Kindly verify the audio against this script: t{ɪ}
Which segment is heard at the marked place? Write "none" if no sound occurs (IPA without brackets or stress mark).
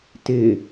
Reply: ɪ